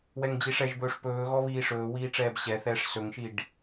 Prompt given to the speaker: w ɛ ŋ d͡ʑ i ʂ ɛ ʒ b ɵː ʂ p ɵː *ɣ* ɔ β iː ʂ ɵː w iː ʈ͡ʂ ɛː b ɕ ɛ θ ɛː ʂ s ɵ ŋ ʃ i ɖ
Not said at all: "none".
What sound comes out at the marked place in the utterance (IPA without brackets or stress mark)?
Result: ɣ